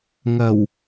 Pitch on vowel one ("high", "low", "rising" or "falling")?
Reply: low